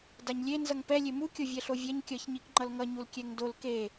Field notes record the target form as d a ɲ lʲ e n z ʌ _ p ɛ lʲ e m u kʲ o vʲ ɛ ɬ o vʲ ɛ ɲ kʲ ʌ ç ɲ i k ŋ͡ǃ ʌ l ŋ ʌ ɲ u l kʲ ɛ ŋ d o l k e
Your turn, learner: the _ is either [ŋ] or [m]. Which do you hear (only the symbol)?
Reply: ŋ